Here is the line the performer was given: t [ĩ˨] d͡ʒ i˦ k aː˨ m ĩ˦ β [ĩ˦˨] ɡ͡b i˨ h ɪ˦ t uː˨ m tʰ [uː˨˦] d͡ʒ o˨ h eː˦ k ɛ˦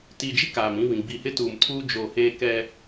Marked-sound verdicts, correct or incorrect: incorrect: i˨, incorrect: ĩ˨, incorrect: uː˦

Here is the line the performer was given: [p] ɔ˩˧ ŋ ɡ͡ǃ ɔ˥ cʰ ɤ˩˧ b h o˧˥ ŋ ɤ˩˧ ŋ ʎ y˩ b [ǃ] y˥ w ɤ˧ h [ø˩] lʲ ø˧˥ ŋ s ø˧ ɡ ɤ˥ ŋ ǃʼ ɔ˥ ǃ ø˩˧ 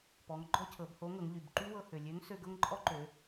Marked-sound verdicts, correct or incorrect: correct, correct, correct

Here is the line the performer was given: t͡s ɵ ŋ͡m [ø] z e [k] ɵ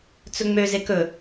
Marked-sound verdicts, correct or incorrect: correct, correct

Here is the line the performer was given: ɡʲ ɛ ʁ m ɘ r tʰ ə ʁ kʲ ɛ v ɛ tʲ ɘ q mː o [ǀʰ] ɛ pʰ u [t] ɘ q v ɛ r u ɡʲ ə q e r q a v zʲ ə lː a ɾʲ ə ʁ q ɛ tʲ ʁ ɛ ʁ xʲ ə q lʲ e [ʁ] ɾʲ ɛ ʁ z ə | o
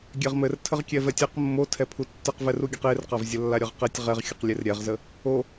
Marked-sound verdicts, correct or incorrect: incorrect: tʰ, incorrect: tː, incorrect: r

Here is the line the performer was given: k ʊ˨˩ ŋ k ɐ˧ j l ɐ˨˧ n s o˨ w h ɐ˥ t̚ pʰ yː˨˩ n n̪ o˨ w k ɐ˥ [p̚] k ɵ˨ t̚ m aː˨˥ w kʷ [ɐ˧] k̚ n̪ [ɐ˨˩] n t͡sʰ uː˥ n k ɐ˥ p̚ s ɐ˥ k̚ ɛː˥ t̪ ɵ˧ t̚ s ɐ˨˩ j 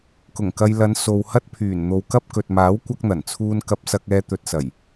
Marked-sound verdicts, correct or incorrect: correct, incorrect: ɐ˥, correct

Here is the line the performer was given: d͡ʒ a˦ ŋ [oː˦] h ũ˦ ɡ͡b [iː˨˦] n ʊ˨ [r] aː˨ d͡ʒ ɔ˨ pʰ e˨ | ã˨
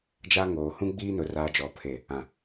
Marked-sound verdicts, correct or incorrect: incorrect: oː˨, incorrect: iː˦, correct

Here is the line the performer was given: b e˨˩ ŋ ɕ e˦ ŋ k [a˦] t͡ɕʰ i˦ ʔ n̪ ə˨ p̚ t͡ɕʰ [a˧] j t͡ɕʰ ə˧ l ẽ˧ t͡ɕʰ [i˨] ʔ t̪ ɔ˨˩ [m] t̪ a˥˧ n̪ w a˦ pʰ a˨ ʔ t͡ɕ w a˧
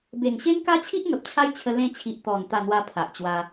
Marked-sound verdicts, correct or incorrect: correct, incorrect: a˦, correct, incorrect: n

